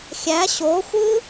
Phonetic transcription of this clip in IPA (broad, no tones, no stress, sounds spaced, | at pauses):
xʲ æ ɕ o xʷ ɯ